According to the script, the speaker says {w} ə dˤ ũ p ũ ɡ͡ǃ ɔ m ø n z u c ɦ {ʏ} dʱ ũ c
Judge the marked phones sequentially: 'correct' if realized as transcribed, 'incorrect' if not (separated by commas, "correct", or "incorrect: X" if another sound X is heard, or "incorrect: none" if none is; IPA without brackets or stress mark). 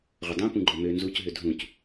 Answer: incorrect: ʁʷ, correct